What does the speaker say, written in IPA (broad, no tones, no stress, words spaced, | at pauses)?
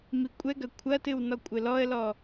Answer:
mikʷʼɛɡɐ kʷʰɐtɨw nɔkʷʼɘlɔə̯lɔ